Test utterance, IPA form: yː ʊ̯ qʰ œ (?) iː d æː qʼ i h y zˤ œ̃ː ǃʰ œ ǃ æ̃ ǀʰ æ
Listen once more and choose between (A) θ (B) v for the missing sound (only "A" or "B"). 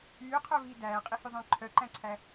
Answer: B